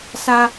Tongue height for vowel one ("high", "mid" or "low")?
low